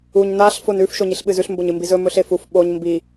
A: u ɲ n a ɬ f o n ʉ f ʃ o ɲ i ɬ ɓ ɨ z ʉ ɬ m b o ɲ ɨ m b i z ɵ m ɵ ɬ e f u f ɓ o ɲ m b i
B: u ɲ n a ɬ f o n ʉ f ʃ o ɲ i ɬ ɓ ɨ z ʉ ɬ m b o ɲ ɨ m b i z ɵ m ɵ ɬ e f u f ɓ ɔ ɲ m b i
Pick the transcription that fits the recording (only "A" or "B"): A